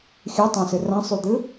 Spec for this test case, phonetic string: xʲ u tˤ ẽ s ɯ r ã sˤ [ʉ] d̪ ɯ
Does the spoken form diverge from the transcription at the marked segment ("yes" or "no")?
no